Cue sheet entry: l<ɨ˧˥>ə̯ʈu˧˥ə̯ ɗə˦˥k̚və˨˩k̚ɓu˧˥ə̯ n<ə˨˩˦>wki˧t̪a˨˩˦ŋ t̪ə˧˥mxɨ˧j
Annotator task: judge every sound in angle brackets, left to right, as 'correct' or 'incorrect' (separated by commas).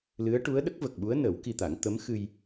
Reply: correct, correct